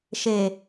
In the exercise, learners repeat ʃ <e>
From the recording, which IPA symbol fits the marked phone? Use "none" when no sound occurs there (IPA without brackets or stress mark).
e